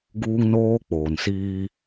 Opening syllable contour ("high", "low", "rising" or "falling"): high